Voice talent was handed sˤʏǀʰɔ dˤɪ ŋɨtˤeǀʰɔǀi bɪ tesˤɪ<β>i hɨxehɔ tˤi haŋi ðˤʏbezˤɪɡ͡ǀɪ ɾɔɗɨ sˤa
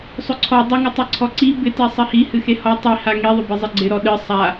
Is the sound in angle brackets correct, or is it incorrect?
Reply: incorrect